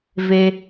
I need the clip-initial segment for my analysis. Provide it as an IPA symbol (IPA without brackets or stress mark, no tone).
v